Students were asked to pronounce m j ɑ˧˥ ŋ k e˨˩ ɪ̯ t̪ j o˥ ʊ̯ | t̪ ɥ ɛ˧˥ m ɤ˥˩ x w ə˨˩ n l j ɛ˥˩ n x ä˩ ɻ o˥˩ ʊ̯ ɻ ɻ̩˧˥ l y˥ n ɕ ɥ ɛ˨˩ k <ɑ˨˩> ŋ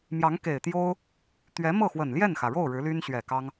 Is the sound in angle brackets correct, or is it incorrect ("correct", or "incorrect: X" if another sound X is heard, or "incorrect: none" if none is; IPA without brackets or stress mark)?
incorrect: ɑ˥